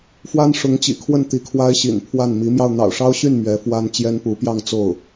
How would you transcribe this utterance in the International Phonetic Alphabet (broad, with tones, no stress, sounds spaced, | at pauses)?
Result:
f w a˥ n ʂ ʊ˧˥ ŋ t͡ɕ ḭ˨˩ kʰ w ə˥˩ n t̪ i˧˥ kʰ w a˥ ɪ̯ ɕ ḭ˨˩ n pʰ w a˥˩ n m i˧˥ m j ɑ˧ ʊ̯ n̪ ɑ̰˨˩ ʊ̯ ʂ ɑ˥ ʊ̯ ɕ y˥˩ n m ɥ ɛ˧˥ f w a˥ n t͡ɕ j ɛ˥ n p u˧˥ p j ɑ˥˧ ŋ t͡s o˥˩ ʊ̯